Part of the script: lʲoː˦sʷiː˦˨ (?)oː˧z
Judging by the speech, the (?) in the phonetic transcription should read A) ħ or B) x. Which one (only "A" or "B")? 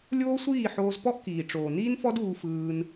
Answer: A